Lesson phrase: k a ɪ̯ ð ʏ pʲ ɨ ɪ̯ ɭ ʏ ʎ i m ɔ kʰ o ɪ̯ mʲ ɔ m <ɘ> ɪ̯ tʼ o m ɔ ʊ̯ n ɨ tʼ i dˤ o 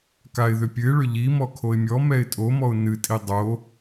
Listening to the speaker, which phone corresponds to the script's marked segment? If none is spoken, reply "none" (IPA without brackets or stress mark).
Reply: ɛ